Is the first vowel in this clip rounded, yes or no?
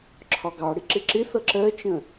yes